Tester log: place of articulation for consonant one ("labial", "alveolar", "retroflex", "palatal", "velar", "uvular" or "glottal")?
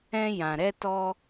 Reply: palatal